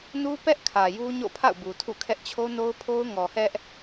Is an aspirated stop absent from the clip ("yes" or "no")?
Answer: no